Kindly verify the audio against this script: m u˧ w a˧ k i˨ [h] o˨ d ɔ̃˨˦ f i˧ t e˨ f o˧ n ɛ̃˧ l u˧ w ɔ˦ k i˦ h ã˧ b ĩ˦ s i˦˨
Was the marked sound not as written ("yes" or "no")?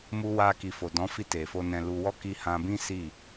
yes